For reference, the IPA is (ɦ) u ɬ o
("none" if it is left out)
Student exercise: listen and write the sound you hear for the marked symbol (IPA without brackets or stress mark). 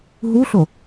ɦ